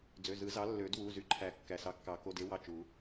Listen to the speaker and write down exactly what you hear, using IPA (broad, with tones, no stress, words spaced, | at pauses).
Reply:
d͡zø˩˧˩zɯ˨˩˦ zɑ˨˥lːø˨˩˦dwu˩˧˩zy˧˩ ǃʰæ˨˩˦kːæ˩ sɑ˨˥kːɑ˨˩˦ ko˩˧˩de˨˥ wɑ˧˩t͡ʃu˨˩˦